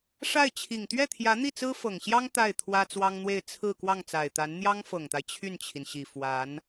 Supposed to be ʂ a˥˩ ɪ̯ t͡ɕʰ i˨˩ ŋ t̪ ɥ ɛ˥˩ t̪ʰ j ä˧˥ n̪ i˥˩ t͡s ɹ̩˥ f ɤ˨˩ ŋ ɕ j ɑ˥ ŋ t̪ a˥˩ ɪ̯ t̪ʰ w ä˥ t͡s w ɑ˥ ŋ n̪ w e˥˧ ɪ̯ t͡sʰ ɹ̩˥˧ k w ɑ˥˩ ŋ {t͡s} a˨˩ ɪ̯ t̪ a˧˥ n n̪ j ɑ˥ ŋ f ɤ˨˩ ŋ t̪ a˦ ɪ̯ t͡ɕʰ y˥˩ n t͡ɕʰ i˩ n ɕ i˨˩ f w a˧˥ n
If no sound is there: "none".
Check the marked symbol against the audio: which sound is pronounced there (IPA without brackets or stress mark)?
t͡s